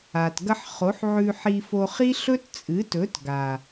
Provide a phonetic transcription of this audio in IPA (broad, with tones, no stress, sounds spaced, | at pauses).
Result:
a˨ t ɡ ɐ˦ ħ χ o˨˦ ħ ʕ ʉ˧ ħ i˧ f o˧ χ i˦ ɬ ɵ˦ t t͡sʼ ɨ˨˦ t ɵ˨˦ t ɡ a˨